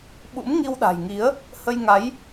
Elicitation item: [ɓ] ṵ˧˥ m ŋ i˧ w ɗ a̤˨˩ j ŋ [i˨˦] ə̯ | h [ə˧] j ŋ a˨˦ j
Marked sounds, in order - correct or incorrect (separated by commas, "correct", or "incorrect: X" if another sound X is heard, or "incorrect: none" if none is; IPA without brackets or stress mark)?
correct, correct, correct